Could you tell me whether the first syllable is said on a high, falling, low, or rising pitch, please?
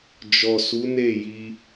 low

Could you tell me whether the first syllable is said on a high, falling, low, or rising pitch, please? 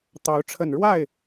rising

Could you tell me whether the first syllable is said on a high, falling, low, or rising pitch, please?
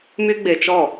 high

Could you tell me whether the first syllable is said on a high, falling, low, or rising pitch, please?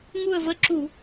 falling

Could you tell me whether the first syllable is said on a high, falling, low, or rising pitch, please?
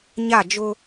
falling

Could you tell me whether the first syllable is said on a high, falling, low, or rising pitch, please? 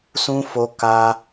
high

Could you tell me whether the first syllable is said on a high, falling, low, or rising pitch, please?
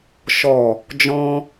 low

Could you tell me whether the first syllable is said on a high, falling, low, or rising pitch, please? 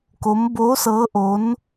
rising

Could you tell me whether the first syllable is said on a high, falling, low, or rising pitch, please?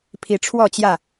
rising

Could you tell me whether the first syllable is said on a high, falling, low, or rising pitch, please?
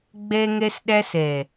high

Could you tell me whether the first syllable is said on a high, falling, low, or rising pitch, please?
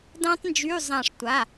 high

